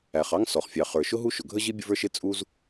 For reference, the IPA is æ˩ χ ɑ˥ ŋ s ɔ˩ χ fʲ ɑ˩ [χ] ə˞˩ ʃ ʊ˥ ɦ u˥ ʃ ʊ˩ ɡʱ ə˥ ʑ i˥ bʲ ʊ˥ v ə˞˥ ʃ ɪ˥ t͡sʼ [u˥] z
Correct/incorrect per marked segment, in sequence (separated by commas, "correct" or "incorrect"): correct, correct